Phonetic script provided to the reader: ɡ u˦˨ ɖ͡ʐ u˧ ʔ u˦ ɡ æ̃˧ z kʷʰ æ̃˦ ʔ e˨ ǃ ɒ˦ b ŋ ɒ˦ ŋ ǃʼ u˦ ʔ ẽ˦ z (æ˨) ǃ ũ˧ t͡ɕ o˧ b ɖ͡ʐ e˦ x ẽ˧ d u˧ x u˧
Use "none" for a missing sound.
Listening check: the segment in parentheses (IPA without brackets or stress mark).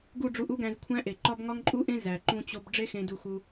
æ˨